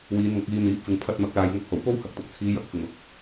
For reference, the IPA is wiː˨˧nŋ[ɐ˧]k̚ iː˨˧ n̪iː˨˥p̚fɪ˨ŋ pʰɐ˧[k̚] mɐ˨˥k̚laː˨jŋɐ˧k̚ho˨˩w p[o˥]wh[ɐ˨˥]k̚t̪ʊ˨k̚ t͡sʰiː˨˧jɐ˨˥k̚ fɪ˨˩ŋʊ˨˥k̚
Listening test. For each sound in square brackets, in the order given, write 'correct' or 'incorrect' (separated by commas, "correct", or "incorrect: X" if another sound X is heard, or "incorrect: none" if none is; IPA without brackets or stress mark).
incorrect: ɐ˨˥, incorrect: t̚, correct, incorrect: ɐ˨